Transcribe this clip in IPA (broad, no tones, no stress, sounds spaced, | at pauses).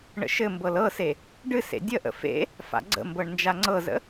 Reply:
ɳ ə̰ ʃ ɘ m b ɤ l ɤ s e | ɖ ɨ s ḛ dʲ ə ʔ ə̰ f ḛ | f a̰ ɡ͡ǀ ə̰ m b ɤ ɳ n d͡ʒ a ŋ͡ǀ ɤ z ə̰